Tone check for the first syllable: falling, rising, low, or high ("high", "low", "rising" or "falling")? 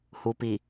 low